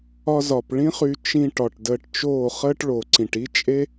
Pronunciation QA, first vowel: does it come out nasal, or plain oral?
oral